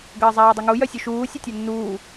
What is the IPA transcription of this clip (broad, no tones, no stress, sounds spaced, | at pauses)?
ɡ əː zˤ aː dˤ ə ŋ u j œ sʲ u ʃ uː sʲ ɐ tʲ ɒ nː uː